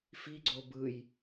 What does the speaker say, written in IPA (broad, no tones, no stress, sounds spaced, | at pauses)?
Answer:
f i ɡ͡ǀ o b ɯ j